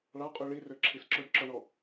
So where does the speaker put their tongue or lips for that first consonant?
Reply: retroflex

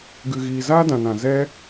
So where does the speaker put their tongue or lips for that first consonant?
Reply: velum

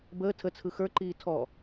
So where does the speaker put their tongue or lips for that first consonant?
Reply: lips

